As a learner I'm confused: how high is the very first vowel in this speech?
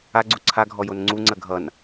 low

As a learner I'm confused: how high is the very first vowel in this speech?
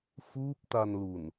high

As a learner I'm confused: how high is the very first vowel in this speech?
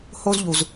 mid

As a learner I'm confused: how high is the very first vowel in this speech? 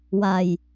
low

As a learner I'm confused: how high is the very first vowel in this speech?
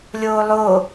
mid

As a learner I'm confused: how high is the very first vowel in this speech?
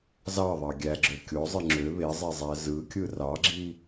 low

